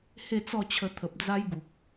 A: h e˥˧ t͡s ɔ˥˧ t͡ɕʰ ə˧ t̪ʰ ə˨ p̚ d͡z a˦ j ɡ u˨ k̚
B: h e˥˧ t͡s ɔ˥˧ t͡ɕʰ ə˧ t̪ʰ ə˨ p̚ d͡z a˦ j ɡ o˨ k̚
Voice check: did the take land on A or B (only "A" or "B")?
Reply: A